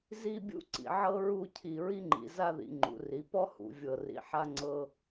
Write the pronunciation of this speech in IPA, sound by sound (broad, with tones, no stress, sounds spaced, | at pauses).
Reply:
z i˥˧ bʲ ṵ˥˧ ǀ ḭ˩˧ ʕ ɤ˥ ɹ u˥˧ cʰ i˧˩ ɹ i˥ ŋ͡ǃ ḭ˩˧ z a˥˧ ð ḭ˩˧ ŋ͡ǃ ṵ˩˧ r i˩˧ p ɔ˥ h ṵ˩˧ vʲ ɤ˧˩ r ḭ˧˩ ħ a˥ ŋ͡ǀ ɤ˥